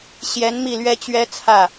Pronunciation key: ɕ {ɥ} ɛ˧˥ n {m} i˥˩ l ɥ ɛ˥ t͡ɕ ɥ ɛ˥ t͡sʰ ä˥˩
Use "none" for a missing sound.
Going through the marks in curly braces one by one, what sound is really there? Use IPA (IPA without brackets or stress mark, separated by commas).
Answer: j, m